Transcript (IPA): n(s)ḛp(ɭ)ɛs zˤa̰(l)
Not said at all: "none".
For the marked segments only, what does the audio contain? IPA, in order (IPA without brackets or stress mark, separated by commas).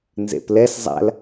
z, l, l